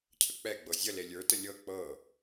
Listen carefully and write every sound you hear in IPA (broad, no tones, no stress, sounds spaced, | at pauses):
cʰ ə k͡p ɛ ɡ͡b ɤ zʲ ə l e lʲ ə˞ t ə lʲ ɤ k͡p ɤ